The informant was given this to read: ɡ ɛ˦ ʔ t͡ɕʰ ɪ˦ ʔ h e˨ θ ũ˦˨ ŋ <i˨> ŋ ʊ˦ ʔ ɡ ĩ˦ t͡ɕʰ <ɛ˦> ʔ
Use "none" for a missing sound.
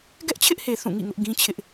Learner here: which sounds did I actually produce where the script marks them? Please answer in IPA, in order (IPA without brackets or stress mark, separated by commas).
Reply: ḭ˦˨, ɪ˦